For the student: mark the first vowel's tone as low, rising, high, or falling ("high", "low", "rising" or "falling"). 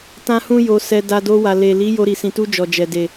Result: high